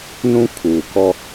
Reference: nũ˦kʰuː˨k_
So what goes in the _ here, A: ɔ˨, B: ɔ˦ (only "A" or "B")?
B